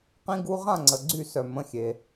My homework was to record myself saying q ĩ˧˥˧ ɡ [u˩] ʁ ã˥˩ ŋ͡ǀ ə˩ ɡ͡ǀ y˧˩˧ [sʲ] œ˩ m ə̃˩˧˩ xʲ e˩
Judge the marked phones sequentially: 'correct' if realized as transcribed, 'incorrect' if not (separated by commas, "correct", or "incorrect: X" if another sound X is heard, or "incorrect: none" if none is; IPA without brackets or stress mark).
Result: incorrect: u˧˥˧, incorrect: s